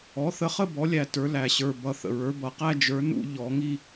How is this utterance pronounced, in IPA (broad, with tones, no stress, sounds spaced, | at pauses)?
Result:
ɔ˩˥ θ ə˩˥ χ ə˥˧ b ɔ˩˥ lʲ æ˧˩ t ə˞˨˩˦ l æ˩ ɕ ə˞˧˩ b ʌ˧˩ θ ə̰˩ ɹ ə˞˩˥ b ʌ˩ q æ˥˧ d͡ʒ ə˞˩˥ n ṵ˥˧ ʎ ɔ˨˩˦ ŋ i˥˧